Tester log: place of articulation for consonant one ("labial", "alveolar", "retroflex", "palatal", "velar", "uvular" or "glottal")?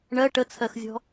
retroflex